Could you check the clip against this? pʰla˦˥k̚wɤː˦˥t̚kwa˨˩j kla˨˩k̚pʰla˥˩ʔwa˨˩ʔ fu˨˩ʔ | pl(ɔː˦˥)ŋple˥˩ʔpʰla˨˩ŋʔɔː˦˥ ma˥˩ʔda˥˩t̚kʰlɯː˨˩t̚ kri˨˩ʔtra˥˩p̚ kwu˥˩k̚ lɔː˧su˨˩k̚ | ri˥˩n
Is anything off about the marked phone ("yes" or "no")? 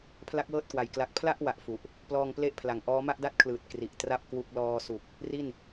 yes